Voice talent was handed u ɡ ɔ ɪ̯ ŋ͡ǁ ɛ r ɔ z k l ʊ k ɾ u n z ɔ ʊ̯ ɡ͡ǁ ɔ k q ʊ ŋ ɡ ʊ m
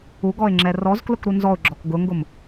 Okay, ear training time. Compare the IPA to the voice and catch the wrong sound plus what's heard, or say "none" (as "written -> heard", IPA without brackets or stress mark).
q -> ɡ